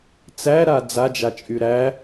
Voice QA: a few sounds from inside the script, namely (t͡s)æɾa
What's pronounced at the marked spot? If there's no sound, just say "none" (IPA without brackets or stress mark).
t͡s